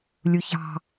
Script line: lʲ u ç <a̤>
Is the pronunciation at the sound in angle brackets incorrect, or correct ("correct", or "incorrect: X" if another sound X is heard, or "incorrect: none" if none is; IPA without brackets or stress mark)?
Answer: incorrect: ɑ̤